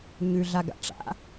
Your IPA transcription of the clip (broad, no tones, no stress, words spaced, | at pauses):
ɲʉɮaɡa̰ ʈ͡ʂa̰